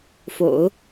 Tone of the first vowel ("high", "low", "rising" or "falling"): low